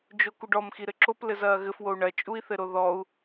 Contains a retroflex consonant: yes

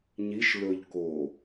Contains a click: no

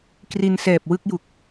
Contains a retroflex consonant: no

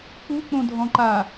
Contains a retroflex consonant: no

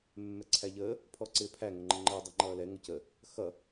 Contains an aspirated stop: yes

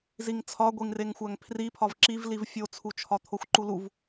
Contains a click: yes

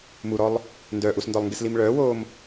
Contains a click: no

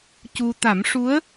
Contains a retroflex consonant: yes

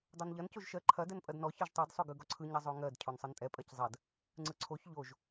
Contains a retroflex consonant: no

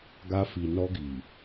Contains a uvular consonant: no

